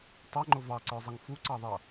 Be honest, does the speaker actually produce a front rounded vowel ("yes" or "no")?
no